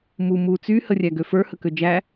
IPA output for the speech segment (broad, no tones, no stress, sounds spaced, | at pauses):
m u m u t͡s y h ə rʲ æ ɡ ø f ə˞ h ə k ø d͡ʒ æ